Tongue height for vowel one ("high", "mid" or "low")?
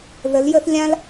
mid